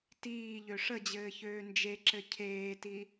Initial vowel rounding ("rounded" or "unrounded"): unrounded